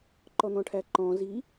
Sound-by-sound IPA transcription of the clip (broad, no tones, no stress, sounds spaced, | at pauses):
ǃ ɔ n̪ ɔ̃ ʈʰ æ ǃ ɔ̃ z i